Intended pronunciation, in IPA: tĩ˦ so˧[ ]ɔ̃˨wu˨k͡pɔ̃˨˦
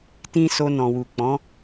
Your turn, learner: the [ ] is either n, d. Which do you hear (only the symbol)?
n